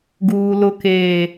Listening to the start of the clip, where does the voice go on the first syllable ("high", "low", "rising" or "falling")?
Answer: low